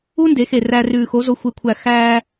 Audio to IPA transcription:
u˥ n d e˩˥ x e˧˩ r æ˧ r ʉː˧˩ x o˧˥ z o˧˥ xʷ e˧˩ kʷʰ æ˧˩ x æː˧

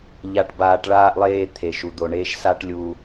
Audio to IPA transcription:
ʎ a˨ ʈ b aː˨ ʈ ɭ aː˧ ʔ lˠ eː˧ t̪ʰ e˨ ʃ u˨ d̪ o˧ ɳ eː˦ ʃ s a˦ ʈ lʲ u˧

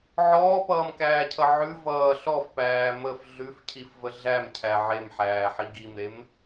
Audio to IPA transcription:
ʕ ɔː p ʌː m k æː cʰ ʌ ʕ ʉ v ʌː ɬ ɔ f p æː m ə f ɮ ʉ f cʰ i f v ə ɮ æ m cʰ æ ʕ e m ħ æː ħ i ɡ i m ɾ e m

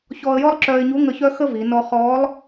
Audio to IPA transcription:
ç ɔː˧ ə̯ j ɔ˥ lˠ ǁ œː˧ ɪ̯ ɲ u˧˥ ŋ ə˧ ç œ˥ x ə˥ v i˩˧ n ɔ˧ χ ɔː˧˥ lˠ

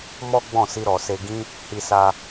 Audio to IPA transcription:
m ɔ˦ ɡ͡b ɔ̃˦˨ s i˧ ɾ ɔ˨ s e˧ ɡ ĩ˦ | h i˧ s a˧

